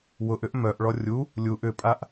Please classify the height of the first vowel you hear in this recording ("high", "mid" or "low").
high